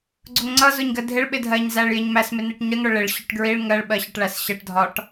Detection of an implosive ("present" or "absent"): present